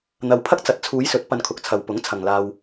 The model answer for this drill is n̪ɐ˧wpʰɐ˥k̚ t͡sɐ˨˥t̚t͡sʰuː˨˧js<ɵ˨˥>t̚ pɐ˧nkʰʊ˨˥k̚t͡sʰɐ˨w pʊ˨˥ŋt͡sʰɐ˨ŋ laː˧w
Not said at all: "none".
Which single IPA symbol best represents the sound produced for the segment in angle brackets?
ɵ˨˥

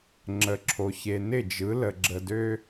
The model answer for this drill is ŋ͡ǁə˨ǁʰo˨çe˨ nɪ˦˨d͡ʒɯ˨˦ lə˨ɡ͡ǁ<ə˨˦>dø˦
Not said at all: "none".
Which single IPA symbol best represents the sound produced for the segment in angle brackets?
ə˨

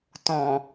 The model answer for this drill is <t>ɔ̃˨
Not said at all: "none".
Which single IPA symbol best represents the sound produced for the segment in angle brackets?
t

